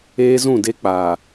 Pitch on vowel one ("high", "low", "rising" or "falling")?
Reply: high